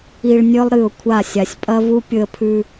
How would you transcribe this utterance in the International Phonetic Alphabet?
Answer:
i˨ɭ nʲɵ˦lˠɾɨ˨ʊ̯kʷʰa˦˨ sʲa˨sʲ pʼɐ˦vu˦ pʲɵ˦ə̯pʰʉ˦

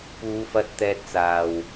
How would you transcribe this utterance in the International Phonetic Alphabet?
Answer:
puː˨˧fɐ˧t̚ t̪ɛː˧t̚t͡saː˨˩w

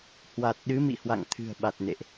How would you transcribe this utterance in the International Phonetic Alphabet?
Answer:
hwa˨˩t̚ ɗɨ˨˦mḭ˧˨hwa̰˧˨ŋ t̪ʰɨ̤˨˩ə̯ ɓa˨˩t̚nḛ˧˨ʔ

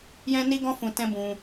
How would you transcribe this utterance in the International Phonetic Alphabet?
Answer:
jɛ̃˦ni˦ɡɔ̃˦fũ˧ tɛ̃˦bũ˧

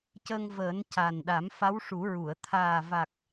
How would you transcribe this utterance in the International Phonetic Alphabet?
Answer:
cə˧ŋvəː˨˩˦n ca˨˩nɗa˨˩˦m fa˧˥wʂu˨˩˦ɹu˨˩˨ə̯ t̪ʰaː˨˩va˨˩k̚

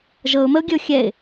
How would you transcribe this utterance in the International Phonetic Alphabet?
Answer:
ʒɤʊ̯məʊ̯ɡʲəʊ̯ xʲɛɪ̯

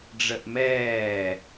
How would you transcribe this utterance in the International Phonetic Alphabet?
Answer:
ɖ͡ʐəʔmɛː

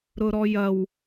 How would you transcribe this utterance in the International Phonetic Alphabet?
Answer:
ɾʊɾɔjɐw

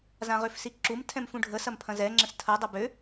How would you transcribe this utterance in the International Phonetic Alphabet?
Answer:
zãʁøfsiǁum tʰɛ̃mfũɖʱə sɐmpʰɐ̃zɛ ŋ͡ǁə̃stʰɐ dˤɐbø

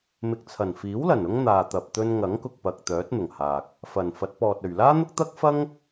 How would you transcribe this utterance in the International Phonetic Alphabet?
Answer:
mɪ˨k̚t͡sʰɐ˨˩nfiː˨˥wlɐ˨˩n ʊ˥ŋn̪aː˨t̪ɐ˨p̚ t̪ɵ˧n ŋɐ˨˥ŋkʊ˨k̚pɐ˨k̚ t̪œː˨˥t̚n̪ʊ˨˩ŋhaː˨k̚ | fɐ˨˩nfɐ˨˥t̚pɔː˨t̚ ɵ˨˩ɥlaː˥n̪ʊ˥k̚t̪ɐ˥k̚ fɐ˥ŋ

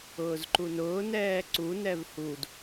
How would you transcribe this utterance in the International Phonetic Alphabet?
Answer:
ʊːzǃunʊː nɛːǀu nɛvhud

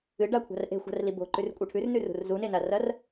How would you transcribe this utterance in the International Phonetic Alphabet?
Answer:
ɨɖakʷʰa̤r ʔe̤xʷa̤rli bo̤ǃʉrkʷʼɨ ʈʰʉrnʉrṳr zunenarɐr

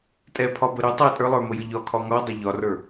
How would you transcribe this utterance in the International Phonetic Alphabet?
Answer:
tʼɛpʰɒbə ɾʏ tˤɛ tʼə˞lˠə˞məjə ʎɒkʰɒ ŋɒdˤə ʎɒrə˞

